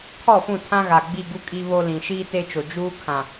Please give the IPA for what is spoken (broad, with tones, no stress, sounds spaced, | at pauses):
kʰ ɔ˦˨ f ũ˦˨ tʰ ã˦ ɣ a˨ ɡ͡b i˦˨ ɡ u˦ kʼ i˦ β o˦ l ĩ˨ ʃ iː˦ t e˦ t͡ʃ o˨ d͡ʒ uː˦ kʰ ã˨